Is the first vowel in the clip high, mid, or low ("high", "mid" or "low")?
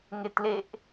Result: mid